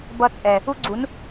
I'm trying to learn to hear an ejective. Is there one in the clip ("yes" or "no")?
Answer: yes